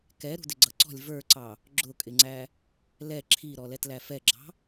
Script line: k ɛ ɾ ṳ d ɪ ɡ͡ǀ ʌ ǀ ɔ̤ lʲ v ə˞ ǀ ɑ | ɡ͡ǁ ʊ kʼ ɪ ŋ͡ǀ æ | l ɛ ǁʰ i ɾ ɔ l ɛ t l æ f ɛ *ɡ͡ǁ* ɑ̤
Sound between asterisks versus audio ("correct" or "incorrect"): correct